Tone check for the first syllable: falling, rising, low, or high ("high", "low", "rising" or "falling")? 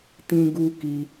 high